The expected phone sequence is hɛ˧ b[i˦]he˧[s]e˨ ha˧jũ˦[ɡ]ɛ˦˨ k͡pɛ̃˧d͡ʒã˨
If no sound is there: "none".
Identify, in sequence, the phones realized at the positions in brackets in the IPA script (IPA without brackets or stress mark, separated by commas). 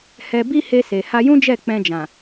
i˦, s, d͡ʒ